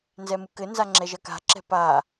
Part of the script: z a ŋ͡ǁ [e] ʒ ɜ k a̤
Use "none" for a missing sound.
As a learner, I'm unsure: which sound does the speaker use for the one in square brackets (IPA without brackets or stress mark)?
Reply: ɛ